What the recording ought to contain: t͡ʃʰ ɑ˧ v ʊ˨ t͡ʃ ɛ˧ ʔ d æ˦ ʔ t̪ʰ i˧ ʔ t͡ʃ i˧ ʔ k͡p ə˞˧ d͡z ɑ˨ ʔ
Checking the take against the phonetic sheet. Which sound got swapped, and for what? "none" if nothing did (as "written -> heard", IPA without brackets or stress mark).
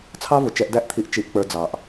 t͡ʃʰ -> t͡sʰ